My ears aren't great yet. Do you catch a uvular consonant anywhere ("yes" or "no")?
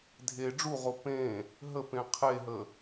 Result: yes